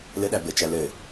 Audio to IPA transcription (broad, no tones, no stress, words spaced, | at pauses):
lɘɗæ bɘt͡ʃæ lɘ